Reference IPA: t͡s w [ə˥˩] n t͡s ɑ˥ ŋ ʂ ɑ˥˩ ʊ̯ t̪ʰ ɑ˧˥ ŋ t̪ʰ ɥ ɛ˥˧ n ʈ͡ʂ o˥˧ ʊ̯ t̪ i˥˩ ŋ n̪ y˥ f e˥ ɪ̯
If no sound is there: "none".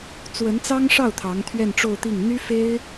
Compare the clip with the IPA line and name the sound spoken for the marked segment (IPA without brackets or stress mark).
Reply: ə˧˥